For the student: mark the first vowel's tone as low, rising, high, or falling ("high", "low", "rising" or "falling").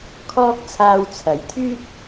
high